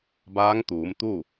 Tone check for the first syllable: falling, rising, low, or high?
rising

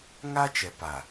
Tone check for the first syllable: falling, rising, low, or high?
high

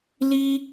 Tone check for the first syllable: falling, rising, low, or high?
high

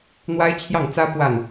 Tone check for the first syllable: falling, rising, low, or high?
high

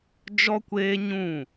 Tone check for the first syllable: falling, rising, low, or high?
high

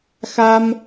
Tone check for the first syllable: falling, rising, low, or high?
high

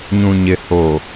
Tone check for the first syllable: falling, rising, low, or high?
low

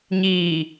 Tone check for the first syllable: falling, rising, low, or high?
low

